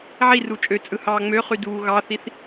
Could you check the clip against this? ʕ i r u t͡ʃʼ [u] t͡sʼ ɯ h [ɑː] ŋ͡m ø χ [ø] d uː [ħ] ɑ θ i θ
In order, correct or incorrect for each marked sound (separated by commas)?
incorrect, correct, incorrect, incorrect